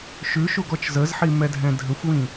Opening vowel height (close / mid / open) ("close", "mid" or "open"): close